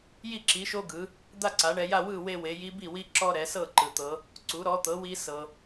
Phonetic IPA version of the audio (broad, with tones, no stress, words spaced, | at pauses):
ji˥˨ǁi˩˥ʃo˦ɡɯ˩˧ | d̪a˥˨ǀa˩˧ɳɛ˩˧ja˥˨ wɯ˥˨we˦we˩˧ ji˦bi˥˨wi˦ ǁɔ˦ɾɛ˩˧sɤ˥˨ ǃɯ˩t̪ɤ˩˧ | ǀu˩˥ɾɔ˩˥t̪ɤ˩˥wi˦ sɤ˩